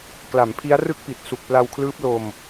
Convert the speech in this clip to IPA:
kla˩˦mpʰi˦˥a̯rɯ˥˩k̚pi˨˩t̚ su˨˩k̚pla˧wkʰlɯː˦˥p̚ lo˧m

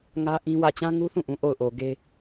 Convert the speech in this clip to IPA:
ŋä˦ʔĩ˦wä˦˨ t͡ɕã˦ŋu˦θũ˦˨ʔũ˨ ʔo˦˨ʊ̯ʔo˨ɡe˦

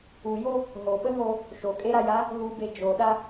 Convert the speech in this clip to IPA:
ujo | ɦoɓəɦo | ʃokʼeɾaja | ɦube d͡ʒoɗa

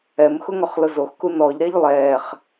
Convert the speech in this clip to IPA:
ɛmxʊ ŋɔχlʊzoxku nɔʎɾɛʎ lˠɛːχ

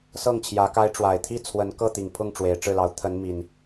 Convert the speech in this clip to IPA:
sɤ˥˨ŋt͡ɕʰjä˨˦ka˦ɪ̯ ʈ͡ʂwa˨˩ɪ̯t̪ʰi˥˨t͡sʰwə˨˦n kɤ˥˨t̪i˨˩ŋpʰʊ˥˨ŋ ʈ͡ʂwe˨˦ɪ̯ʈ͡ʂɻ̩˥˨lɑ˨˦ʊ̯ t̪ʰə˨˦n mi˨˩n

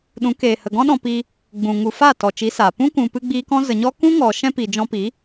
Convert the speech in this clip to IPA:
ɗũ˨˦keː˨hə˨ ɡɔ̃˦ɗɔ̃˧ piː˧ | ɡ͡bũ˨ŋu˨fa˦˨ tɔ˨t͡ʃi˨˦saː˨ pũ˦kũ˨pɨ˧ ɡ͡biː˦kɔ̃˦ zə˨ɲɔ˦ kũ˦ŋɔ˨ ʃɛ̃˦pi˨ d͡ʒɔ̃˧pi˨˦

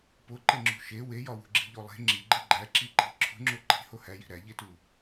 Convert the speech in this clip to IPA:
poǃeŋ͡ǁṳ ʃe wejɒwṳɡ͡ǁi̤ ʎolˠe̤ ŋ͡ǁiɡ͡ǃe ɡ͡ǃæ ǁiǃi̤ ǁʰṳŋ͡ǁo ǃi̤ hohæji̤ ɾæʎetu

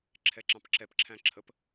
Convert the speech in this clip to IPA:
ǁʰɛǁɑ̃pǁɛp ǁʰæ̃ǁʰəp

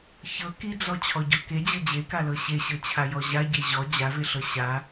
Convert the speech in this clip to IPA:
çɤ kid͡zɔ t͡ɕʰɔɟɔke d͡ʑɤd͡ʑekalɤ ɕeɕɤt͡ɕʰa jɔʑaɟe ʑɔ d͡ʑaveɬɤ ɕa

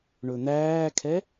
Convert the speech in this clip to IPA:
ɳɵn̪æːkʰɛ

